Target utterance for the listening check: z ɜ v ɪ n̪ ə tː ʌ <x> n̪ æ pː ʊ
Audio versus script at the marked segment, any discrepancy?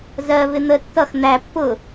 no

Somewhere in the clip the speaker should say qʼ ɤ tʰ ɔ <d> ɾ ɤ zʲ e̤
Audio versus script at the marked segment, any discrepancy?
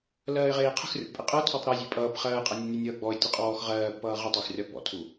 yes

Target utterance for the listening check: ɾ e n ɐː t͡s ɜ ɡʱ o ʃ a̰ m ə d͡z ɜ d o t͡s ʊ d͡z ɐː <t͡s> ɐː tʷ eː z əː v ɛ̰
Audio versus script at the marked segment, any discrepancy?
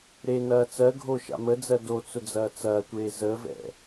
no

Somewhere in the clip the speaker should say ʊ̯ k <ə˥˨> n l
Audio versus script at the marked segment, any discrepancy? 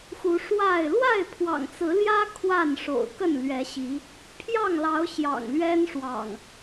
no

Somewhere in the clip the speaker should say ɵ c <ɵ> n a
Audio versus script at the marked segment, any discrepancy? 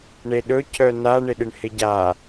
yes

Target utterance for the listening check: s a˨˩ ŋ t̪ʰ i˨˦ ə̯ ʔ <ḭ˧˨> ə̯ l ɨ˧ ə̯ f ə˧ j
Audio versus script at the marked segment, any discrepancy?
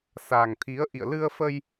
no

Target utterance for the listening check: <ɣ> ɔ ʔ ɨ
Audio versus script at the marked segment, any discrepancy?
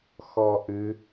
yes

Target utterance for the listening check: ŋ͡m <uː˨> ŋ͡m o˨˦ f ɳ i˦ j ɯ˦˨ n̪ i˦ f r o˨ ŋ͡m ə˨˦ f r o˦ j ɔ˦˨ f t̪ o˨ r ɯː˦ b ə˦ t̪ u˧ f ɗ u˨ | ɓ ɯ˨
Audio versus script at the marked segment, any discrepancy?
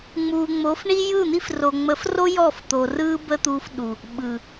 no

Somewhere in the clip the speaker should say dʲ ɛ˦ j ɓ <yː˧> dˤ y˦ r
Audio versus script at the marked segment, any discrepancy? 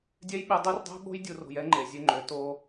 yes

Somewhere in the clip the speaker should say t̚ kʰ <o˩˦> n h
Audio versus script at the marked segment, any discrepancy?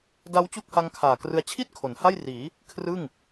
no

